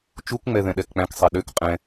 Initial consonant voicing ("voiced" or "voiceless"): voiceless